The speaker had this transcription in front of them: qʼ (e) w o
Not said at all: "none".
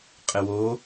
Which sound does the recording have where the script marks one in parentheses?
ɘ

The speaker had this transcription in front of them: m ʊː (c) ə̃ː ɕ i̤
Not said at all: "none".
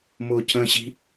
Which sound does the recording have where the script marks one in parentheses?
c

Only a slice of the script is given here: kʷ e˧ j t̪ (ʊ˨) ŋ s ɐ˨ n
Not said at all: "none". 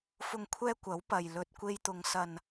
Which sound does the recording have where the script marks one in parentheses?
ʊ˨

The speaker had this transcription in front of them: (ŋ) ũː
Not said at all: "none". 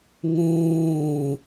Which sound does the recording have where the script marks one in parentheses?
ŋ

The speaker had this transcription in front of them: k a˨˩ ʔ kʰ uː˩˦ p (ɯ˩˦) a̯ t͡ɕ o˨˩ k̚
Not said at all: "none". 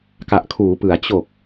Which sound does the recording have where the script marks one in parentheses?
ɯ˩˦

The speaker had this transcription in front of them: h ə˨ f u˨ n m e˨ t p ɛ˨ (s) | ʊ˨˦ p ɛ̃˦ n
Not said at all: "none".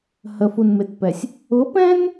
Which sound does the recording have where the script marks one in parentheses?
sʲ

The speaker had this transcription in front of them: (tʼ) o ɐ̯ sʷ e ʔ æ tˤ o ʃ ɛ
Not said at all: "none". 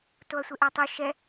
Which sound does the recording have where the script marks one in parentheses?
t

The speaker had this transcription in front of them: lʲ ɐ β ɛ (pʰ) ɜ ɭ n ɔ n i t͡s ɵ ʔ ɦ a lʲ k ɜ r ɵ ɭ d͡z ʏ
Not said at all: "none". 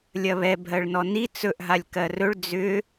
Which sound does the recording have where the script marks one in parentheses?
bʱ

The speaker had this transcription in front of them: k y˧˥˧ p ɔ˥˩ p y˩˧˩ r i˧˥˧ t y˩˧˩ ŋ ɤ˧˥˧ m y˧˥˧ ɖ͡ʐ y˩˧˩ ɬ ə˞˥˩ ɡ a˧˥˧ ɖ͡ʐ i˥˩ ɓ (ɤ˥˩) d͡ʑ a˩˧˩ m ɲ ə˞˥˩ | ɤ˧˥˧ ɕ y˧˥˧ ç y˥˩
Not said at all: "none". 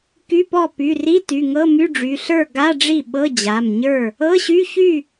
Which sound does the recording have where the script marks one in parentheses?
ɤ˧˥˧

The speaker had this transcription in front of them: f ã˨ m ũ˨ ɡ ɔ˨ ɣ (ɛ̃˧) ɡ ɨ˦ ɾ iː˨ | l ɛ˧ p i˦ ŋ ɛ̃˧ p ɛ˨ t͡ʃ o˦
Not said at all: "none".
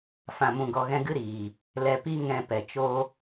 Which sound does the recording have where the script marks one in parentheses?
ɛ̃˧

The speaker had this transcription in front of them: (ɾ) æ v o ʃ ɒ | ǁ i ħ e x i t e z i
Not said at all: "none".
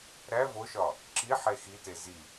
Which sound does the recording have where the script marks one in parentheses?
ɾ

